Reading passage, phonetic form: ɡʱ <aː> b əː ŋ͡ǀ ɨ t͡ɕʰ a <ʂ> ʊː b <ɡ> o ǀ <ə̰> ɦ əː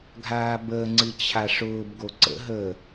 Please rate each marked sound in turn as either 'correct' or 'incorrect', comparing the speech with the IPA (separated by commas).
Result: correct, correct, correct, correct